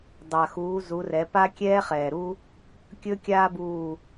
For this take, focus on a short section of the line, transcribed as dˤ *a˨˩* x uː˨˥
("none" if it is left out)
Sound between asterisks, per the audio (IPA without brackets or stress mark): a˨˩